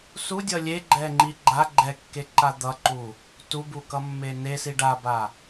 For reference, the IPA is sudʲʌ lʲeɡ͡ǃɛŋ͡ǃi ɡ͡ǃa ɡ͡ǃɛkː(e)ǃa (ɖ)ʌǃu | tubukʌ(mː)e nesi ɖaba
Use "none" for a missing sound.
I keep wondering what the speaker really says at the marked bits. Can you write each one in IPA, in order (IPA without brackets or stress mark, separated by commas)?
e, d̪, mː